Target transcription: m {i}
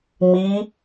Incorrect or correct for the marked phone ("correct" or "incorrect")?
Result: correct